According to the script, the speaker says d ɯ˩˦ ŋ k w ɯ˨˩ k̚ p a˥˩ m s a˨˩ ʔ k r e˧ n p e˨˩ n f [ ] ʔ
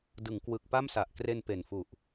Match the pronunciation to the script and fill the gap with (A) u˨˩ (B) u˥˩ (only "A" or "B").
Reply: A